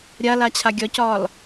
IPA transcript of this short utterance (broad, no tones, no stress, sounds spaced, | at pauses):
ɾʲ a l a t͡ɕʰ a ɡʲ ɒ c ɒː l